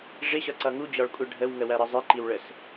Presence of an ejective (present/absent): present